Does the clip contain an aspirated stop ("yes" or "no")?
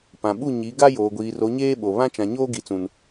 no